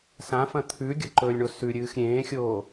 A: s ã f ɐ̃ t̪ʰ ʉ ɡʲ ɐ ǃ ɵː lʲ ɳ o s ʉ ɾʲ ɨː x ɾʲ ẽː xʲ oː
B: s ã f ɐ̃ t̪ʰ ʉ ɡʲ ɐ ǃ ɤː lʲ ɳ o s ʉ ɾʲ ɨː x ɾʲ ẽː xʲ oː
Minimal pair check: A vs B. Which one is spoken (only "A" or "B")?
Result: A